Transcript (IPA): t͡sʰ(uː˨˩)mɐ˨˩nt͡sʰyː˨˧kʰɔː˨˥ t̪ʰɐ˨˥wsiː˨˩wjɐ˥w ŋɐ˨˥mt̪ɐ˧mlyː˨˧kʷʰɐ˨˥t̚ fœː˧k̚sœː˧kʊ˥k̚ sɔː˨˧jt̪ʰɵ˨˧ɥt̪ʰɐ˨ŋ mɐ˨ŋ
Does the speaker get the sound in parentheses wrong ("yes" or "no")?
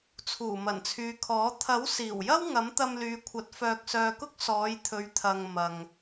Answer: no